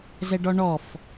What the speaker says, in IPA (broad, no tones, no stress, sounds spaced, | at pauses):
z ɛ ɖ ɔ ɳ ɔ f